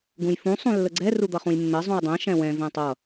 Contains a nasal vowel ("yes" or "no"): yes